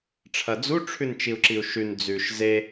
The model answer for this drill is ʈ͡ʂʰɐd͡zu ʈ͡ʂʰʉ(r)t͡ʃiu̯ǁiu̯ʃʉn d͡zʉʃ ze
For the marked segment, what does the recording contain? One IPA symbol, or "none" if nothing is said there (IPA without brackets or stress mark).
n